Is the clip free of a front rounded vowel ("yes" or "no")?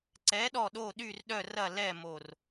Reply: no